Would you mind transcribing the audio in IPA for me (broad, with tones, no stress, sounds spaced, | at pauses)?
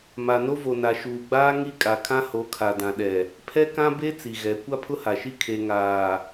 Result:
m a˨ n o˦ v o˨ n a˨ ʃ uː˨ ɡ͡b aː˦ ŋ i˦ kʼ a˨ kʰ ã˦ h o˨˦ kʰ a˨ d ã˨ ɗ ɛ˨ | pʰ ɛ˦ k ã˦ b e˦ t͡s i˨ ɣ ɛ˨˦ kʷ a˦ pʰ ʊ˦ h a˨ ʃ i˦ kʰ e˨ ŋ aː˨